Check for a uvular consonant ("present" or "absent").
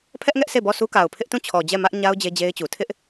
absent